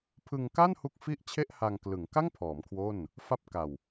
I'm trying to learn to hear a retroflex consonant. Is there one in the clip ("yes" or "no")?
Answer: no